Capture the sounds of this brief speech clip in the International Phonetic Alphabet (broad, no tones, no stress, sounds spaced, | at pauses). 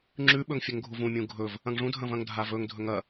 ŋ͡ǁ ʉ ɓ ɵ ŋ fʲ ɵ ŋ ɡʱ u v ũ mʲ ũ ɡʱ ɵ v | ɐ̃ ŋ ʐ ũ dʱ ɐ̃ v ɐ̃ ŋ dʱ a v ɵ ŋ dʱ ɵ ŋ ɐ